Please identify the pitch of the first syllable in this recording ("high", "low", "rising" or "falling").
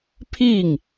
falling